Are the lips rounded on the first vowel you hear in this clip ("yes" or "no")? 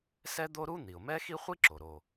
no